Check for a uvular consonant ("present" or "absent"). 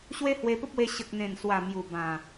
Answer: absent